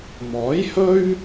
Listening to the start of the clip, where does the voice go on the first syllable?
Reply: rising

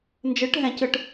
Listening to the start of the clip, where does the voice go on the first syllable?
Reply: rising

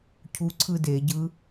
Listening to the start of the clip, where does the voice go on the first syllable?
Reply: rising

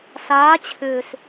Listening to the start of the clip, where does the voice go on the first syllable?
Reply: rising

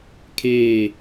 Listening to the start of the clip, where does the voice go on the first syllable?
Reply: falling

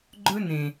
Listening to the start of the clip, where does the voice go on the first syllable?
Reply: high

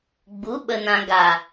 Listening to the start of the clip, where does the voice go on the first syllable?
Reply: rising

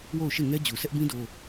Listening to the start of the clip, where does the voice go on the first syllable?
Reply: falling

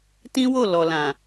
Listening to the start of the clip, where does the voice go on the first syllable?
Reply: high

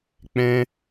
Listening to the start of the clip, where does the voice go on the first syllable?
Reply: high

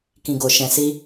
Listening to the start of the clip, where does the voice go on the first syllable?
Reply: low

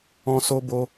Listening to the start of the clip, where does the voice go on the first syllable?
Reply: high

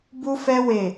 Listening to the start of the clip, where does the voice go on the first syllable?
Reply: high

